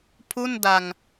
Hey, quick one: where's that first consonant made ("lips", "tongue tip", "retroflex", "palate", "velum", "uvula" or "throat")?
lips